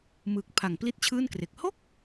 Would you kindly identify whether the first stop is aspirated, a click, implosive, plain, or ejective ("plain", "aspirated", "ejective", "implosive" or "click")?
plain